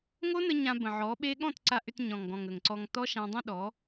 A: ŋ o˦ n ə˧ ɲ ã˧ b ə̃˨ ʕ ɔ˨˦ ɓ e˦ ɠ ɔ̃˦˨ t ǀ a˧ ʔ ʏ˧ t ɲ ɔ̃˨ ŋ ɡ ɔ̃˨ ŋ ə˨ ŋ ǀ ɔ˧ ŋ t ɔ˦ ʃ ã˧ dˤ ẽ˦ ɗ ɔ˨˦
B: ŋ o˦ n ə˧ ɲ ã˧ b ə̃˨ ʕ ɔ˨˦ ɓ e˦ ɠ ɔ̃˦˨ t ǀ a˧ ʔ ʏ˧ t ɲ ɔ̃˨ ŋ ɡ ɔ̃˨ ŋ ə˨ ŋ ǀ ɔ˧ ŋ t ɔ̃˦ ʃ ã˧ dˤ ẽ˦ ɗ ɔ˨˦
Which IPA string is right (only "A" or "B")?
A